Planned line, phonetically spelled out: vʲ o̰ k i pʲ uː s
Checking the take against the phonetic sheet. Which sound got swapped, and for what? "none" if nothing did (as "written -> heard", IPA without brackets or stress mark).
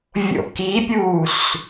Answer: none